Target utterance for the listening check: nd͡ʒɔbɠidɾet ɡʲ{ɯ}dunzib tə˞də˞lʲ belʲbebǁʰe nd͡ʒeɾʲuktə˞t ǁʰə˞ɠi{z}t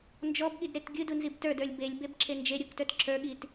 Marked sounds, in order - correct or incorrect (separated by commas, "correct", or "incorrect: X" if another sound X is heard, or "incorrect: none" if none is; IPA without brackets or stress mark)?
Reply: correct, incorrect: none